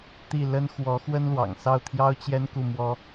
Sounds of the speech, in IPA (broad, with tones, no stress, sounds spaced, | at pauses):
t̪ i˥˩ l ə˥ n x w ɔ˧˥ x w ə˥ n l w ɑ̰˨˩ ŋ s ɑ˥˩ ʊ̯ t̪ʰ j ɑ˥ ʊ̯ t͡ɕ j ɛ˥ n k u˥˩ m w ɔ˥